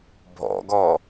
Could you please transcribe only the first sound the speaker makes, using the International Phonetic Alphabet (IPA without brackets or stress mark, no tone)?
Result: bʱ